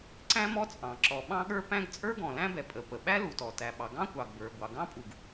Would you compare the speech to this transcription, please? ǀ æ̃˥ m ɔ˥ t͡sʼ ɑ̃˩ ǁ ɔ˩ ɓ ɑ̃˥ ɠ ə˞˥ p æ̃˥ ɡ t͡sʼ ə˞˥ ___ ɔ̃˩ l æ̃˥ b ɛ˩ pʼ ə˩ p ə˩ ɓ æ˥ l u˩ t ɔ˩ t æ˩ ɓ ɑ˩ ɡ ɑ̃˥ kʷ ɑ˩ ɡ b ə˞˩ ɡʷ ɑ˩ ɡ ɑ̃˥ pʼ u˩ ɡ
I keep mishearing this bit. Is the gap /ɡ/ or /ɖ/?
ɡ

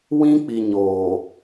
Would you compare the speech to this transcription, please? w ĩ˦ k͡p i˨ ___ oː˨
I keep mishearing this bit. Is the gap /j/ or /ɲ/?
ɲ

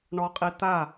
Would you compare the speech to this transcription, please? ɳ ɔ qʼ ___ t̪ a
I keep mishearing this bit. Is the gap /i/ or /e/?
i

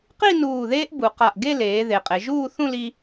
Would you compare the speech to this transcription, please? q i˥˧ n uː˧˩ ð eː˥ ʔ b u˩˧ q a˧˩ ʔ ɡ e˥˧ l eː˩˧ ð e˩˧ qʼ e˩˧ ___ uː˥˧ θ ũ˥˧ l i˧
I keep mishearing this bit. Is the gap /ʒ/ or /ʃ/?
ʒ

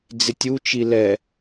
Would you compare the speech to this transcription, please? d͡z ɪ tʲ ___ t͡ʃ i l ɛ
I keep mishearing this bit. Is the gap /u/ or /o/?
u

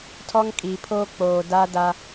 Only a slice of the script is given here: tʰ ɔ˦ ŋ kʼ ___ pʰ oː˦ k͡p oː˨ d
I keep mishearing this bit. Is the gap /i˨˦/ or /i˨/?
i˨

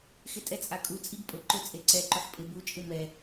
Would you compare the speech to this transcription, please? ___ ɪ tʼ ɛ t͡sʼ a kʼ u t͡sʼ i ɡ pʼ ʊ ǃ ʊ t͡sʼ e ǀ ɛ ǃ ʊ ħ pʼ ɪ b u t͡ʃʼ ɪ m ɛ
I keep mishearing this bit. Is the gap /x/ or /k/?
x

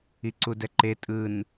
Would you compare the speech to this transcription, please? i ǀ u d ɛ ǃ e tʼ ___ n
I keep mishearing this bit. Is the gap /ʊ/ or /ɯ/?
ɯ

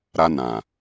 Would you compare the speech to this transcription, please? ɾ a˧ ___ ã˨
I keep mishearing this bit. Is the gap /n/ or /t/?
n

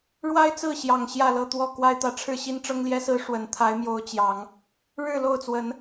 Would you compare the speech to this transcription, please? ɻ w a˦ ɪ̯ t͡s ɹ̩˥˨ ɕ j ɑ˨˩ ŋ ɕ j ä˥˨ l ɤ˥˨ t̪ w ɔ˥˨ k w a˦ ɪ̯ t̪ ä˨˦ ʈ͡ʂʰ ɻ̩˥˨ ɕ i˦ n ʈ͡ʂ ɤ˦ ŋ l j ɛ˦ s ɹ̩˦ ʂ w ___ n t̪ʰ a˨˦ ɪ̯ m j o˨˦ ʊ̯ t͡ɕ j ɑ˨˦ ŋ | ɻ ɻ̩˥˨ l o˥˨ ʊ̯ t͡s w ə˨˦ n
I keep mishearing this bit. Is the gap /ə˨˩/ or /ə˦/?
ə˨˩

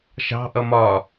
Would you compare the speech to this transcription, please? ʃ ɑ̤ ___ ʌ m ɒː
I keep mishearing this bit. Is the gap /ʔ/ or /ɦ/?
ʔ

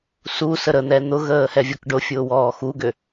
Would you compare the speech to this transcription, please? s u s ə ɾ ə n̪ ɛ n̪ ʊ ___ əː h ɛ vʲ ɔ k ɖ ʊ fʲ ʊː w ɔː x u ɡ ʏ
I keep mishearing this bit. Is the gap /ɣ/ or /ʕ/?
ɣ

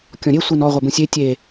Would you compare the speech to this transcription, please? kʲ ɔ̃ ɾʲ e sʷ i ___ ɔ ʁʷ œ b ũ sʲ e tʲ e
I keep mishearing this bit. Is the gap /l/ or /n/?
n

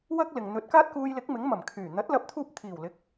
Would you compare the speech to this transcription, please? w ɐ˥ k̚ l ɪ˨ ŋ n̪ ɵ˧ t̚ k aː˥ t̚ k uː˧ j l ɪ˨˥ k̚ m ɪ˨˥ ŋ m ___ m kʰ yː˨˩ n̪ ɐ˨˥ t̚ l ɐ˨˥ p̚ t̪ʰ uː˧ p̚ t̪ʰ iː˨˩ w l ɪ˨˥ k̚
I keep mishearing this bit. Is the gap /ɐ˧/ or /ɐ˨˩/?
ɐ˨˩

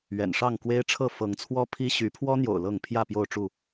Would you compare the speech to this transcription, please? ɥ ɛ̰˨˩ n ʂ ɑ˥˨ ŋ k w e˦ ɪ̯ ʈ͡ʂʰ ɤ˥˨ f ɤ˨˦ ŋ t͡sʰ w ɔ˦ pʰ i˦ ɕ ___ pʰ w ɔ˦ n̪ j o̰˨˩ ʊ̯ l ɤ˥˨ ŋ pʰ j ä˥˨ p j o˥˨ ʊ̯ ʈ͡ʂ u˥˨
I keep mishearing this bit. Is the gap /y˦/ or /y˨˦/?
y˨˦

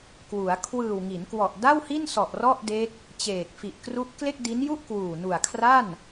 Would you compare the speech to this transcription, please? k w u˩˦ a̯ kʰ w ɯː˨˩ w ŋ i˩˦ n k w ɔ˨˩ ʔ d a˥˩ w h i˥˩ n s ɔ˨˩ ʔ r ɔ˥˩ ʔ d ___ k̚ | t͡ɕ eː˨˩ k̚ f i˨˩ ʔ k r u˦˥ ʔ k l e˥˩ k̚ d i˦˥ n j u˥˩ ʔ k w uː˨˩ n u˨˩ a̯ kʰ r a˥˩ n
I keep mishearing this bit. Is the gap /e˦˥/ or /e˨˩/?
e˦˥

